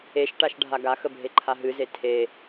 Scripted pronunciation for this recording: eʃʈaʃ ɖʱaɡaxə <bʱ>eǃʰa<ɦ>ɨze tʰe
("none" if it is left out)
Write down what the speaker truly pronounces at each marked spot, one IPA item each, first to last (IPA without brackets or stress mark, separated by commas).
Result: bʱ, ɦ